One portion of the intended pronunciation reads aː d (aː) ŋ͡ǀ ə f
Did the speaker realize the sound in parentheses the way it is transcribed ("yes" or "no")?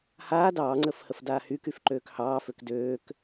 no